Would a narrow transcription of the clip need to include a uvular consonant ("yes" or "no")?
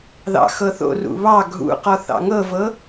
yes